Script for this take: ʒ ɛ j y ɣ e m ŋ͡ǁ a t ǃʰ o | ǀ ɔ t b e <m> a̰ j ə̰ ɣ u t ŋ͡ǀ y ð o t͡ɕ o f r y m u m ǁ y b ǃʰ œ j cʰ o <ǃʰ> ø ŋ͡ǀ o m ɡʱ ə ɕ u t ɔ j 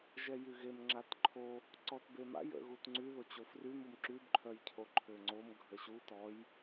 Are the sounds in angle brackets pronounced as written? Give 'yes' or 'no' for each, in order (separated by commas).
yes, yes